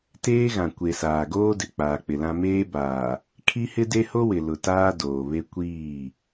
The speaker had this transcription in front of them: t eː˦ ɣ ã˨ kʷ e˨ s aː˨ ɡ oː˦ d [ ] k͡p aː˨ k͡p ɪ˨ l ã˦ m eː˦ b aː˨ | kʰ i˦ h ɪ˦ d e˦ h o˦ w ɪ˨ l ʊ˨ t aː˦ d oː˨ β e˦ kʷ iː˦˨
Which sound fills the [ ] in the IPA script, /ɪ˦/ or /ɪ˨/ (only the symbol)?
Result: ɪ˨